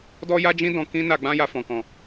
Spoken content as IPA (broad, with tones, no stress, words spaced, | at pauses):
dɔ˦ja˦d͡ʒĩ˦dɔ̃˧ kĩ˦na˧ ɡ͡bã˦ja˧fɔ̃˨kɔ̃˨